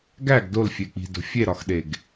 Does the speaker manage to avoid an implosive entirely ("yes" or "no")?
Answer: no